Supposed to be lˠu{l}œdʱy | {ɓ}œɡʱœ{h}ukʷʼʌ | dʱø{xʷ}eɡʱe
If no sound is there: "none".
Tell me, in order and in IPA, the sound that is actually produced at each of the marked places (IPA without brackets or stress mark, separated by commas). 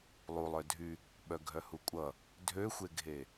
lˠ, ɓ, h, xʷ